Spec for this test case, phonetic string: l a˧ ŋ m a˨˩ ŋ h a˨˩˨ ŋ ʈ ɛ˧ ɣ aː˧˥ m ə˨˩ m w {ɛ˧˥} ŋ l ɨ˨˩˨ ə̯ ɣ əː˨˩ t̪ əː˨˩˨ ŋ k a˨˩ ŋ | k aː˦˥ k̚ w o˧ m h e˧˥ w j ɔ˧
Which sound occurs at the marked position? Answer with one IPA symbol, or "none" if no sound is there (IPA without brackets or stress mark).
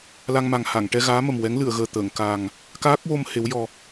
ɛ˧˥